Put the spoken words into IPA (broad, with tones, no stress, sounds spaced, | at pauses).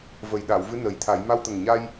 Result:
v ə˨˩ j ɗ a˨˩˨ w v ɨ˧˥ n ə˨˩ j t̪ʰ a˨˩˦ j m a˧ w t̪ ə˨˩ ŋ ɲ a˧ j